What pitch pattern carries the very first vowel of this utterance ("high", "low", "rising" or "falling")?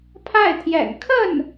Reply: falling